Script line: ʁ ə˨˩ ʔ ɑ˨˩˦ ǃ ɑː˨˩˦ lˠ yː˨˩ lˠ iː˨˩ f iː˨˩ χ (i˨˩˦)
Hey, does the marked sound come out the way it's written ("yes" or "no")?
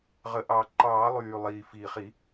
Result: yes